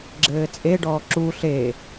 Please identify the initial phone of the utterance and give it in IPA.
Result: ɡ͡ǁ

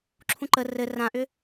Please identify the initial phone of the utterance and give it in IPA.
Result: ǁʰ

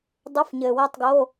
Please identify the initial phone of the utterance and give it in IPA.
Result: dˤ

